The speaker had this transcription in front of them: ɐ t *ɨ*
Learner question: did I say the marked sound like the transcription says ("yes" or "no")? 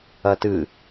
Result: yes